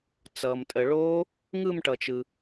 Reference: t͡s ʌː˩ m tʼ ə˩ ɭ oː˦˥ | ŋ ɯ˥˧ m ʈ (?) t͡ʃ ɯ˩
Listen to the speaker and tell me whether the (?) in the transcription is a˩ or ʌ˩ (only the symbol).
ʌ˩